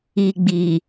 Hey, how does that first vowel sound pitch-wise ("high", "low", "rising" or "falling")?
low